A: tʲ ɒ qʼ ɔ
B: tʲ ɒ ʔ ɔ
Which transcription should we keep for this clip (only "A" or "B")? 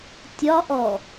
B